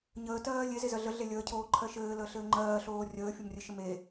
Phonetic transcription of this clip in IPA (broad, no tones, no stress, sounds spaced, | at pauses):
ɲ əː t ɜː lʲ e z e z ɜ ɮ ə ɮ e lʲ əː cʰ oː ǃʰ ɜ ʃ ɘː l əː ɬ ɘː ŋ͡ǃ ɜː ɬ oː rʲ əː fʲ o m rʲ ɘ ʃ ə m e